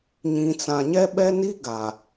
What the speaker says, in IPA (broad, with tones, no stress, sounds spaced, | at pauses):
ɲ ĩ˨ t͡s ã˨ ɲ ɛ˦ ɓ ɛ˦ n i˦ ɡ a˨